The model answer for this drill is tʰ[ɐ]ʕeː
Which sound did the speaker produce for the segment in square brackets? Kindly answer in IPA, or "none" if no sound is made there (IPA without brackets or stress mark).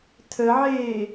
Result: ə